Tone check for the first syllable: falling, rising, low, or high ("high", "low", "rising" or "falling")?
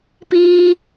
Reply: high